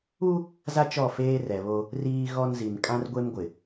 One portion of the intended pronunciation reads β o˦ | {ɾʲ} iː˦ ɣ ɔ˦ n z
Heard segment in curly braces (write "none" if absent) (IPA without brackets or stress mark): r